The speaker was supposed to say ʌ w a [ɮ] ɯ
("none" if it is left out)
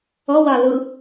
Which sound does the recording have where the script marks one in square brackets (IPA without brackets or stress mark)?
l